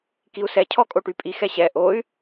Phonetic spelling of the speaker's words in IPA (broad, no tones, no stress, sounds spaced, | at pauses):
k i u̯ s ɛ cʰ ɔ kʼ o ʈ y pʼ i x ɛ ɕ ɛ ʔ o y̯